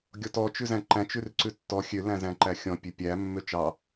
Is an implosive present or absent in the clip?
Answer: absent